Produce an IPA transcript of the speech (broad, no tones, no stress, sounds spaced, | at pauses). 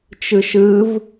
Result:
t͡ʃ ɯ ʃ ɯ v